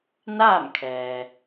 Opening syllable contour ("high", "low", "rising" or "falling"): falling